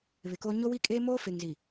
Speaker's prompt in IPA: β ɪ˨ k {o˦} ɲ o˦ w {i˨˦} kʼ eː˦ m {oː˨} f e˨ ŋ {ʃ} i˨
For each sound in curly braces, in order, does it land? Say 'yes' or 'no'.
yes, no, no, no

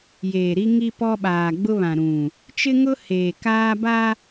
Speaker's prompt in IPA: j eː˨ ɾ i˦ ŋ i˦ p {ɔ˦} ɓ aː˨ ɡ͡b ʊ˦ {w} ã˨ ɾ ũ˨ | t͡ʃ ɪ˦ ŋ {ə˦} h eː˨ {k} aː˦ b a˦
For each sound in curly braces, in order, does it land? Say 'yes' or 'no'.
yes, no, no, yes

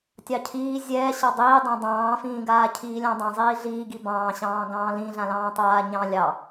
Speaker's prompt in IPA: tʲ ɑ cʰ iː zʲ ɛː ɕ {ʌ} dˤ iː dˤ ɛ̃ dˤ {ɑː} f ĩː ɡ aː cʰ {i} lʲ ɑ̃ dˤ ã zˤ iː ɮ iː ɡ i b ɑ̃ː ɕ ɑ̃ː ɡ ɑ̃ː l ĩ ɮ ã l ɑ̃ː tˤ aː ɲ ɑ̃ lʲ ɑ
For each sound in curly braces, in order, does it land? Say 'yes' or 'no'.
no, no, no

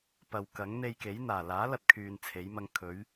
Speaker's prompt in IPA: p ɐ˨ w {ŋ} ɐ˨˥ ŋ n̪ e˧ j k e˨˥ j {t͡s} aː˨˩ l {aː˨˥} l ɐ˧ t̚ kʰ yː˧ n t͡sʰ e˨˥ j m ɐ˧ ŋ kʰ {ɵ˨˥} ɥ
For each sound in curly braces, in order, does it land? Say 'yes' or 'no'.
no, no, yes, yes

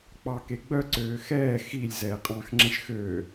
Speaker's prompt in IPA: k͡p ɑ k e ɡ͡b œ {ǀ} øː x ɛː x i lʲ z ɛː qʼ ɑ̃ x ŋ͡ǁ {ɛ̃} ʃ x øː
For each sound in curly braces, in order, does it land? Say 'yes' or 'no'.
yes, yes

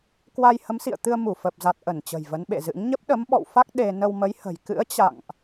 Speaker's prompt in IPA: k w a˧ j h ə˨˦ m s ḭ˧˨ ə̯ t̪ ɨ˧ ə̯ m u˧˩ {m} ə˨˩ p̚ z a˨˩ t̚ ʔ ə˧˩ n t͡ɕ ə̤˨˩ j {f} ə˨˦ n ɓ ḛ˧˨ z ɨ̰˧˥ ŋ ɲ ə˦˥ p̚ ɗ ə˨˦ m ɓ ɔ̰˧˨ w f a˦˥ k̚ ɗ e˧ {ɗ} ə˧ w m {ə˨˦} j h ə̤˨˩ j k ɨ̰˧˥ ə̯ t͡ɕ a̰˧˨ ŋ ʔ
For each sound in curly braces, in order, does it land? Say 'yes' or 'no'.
no, no, no, yes

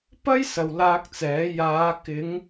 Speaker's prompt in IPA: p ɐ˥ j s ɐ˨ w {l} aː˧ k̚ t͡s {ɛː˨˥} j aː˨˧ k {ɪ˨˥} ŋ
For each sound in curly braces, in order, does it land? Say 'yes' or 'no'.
yes, yes, no

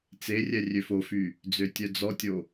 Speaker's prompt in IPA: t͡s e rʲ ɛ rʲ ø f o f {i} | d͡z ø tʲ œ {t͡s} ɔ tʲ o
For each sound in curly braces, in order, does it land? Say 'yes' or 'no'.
no, no

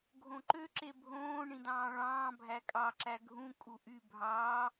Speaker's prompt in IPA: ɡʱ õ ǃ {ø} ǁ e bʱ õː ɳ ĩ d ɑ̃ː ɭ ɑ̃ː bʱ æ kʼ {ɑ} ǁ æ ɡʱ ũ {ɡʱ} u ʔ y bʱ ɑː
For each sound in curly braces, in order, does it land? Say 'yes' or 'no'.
yes, yes, no

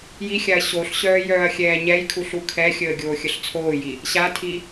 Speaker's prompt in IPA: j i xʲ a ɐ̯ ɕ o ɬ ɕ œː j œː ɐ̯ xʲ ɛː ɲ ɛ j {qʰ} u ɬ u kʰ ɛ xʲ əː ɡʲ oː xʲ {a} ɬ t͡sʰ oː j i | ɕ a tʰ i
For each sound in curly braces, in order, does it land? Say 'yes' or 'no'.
no, no

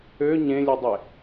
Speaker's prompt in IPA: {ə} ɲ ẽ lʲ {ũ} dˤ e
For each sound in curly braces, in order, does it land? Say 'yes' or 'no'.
no, no

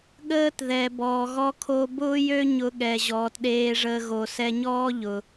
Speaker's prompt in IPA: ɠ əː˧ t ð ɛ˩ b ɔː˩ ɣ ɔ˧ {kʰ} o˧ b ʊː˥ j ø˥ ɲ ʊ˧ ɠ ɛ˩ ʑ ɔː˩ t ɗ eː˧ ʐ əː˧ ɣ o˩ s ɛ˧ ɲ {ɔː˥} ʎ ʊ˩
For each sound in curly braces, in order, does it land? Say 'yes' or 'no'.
yes, yes

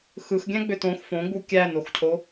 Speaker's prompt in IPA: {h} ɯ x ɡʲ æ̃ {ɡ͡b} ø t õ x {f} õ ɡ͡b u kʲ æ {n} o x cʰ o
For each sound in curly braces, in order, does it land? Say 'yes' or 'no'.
no, yes, yes, yes

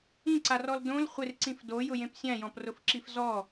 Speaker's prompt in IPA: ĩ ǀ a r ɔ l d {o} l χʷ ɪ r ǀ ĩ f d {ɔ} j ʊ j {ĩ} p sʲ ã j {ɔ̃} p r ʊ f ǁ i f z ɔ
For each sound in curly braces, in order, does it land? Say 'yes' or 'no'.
no, no, no, yes

